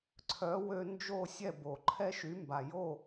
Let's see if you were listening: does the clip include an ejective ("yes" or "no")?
no